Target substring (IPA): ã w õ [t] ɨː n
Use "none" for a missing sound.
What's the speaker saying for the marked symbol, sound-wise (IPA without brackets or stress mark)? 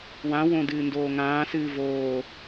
d